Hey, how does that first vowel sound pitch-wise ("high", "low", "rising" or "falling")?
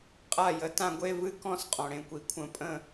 falling